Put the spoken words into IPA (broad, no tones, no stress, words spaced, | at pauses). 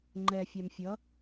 ŋ͡ǃɛfʲam fʲʌ